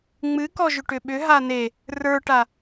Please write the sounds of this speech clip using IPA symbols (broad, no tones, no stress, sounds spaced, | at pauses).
ŋ͡m ɨ k ɔ ʒ ʏ ʈ ʏ ɓ ʏ ɦ a n e | r ə˞ ʈ a